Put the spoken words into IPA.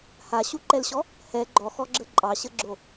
h a ɕ u ǃ ɛ l ɕ ɔ | h ɛ ɡ͡ǃ ɔ x ɔ ɡ͡ǁ ə ǃʼ ɑ ɕ ə ɡ͡ǁ o

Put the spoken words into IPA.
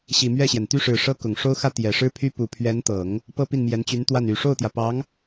ɕ i˨˩ m ɥ ɛ˥˩ ɕ j ɛ˩ n t̪ y˥˩ ʂ ɻ̩˨˩ ʂ ɤ˥ k ʊ˨˩ ŋ ʂ o˥ ʊ̯ x ä˥ t̪ j ɛ˨˩ ʂ ɻ̩˥ pʰ y˥ p u˨˩ pʰ ɥ ɛ˧˥ n t̪ ɤ˨˩˦ ŋ | p ɤ˥ p i˥˩ n m j ɛ˧˥ n t͡ɕ y˧˥ n t̪ w a˥˩ n y˨˩ ʂ o˥˩ ʊ̯ t̪ j ä˩ p ɑ˧˥ ŋ

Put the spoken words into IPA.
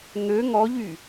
ŋ ø ŋ ɔ ʎ y

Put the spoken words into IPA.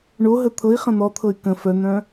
ɳ o ɦ ə t̪ʰ ɤ i̯ χ ə̃ n̪ ɔ t̪ʰ ɤ y̯ k ə̃ f œ n̪ œ̃

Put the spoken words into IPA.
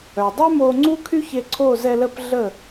œ˩ dˤ y˥ m o˧ ŋ͡ǀ u˥ kʰ y˥ ç e˧ ǀʰ o˥˩ z ɛ˧ l ə˥˩ p ɮ ə˥˩

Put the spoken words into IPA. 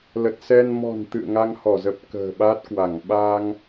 l ə˨˩ t̚ s ɛ˧ n m ɔ̤˨˩ n t̪ ɨ̰˧˨ ə̯ ŋ a˧ ŋ h ɔ˧˩ z ə˨˩ p̚ k ə̤ː˨˩ ɓ a˦˥ t̚ k w a˧˩ ŋ ɓ a˧ ŋ

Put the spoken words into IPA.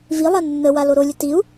v i lˠ a nː ə w a l o ɾ o lʲ ə t i u̯

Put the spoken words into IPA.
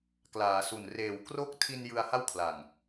k l aː˩˦ s u˨˩ n r eː˩˦ w k r o˦˥ k̚ tʰ i˧ n j ɯ˧ a̯ h a˥˩ w kʰ l a˨˩ ŋ

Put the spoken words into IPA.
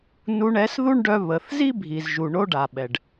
n u˧ ɳ ɛ˨˦ s ð u˦ ɳ ɖ œ˧ β ə˨ θ z i˦ bʱ i˨ z ʒ u˨ ɳ o˦ ɖ a˨ ɓ ɛ˨ ɖ

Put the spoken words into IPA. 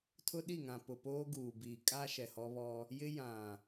tʰ ʊ˦ ɗ i˦˨ ŋ ã˨ p ʊ˨ p oː˦ ɡ uː˨ b iː˨ kʼ a˦ ʃ ɛ˨ h ɔ˦ β ɔ˦ | j ɪ˦ j ã˨

